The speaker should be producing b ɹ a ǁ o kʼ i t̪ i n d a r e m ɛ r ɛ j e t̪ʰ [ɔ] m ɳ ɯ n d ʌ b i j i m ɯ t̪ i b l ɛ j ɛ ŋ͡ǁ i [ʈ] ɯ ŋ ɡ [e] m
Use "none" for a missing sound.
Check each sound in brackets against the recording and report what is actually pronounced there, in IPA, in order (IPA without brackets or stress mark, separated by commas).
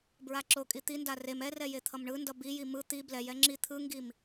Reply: ʌ, t̪ʰ, i